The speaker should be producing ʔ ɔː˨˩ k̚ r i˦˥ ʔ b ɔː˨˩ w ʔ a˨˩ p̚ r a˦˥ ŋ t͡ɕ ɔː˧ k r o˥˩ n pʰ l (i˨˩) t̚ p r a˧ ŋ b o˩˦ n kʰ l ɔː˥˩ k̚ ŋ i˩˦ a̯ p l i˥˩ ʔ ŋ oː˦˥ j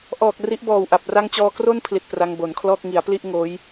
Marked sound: correct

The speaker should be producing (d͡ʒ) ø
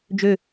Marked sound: correct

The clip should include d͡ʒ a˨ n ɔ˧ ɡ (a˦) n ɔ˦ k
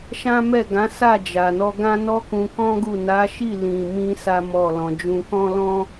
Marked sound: incorrect: ã˦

